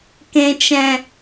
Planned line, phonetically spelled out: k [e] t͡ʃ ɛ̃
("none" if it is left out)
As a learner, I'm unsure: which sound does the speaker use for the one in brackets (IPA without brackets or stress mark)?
ẽ